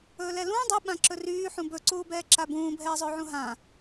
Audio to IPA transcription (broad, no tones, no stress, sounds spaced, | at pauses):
ɵː l ɛ l ũː dˤ u ɓ ã ǁ ɵ r yː ħ ũ b ɵ ǀ uː b ɛː ǁ a b ũː bʱ ɛː zˤ ɵː ʕ ũ ɦ ã